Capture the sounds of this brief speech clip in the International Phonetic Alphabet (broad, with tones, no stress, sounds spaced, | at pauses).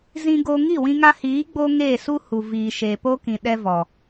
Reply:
z ĩ˧ ɡ o˧ ŋ i˦˨ w ĩ˧ ŋ a˧ h iː˨˦ ɡ͡b o˦ ŋ eː˦˨ s u˦ h u˨ v iː˨ ʃ eː˨ p o˦ k ĩ˨ ɗ ɛ˦ v ɔ˨